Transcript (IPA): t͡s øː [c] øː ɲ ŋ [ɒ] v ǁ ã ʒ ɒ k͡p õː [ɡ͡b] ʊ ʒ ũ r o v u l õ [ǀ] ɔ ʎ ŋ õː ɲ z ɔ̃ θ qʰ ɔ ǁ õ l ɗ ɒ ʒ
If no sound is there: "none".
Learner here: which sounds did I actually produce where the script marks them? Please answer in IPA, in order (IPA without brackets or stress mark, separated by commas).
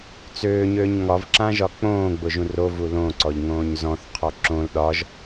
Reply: ɲ, ɒ, ɡ͡b, ǀ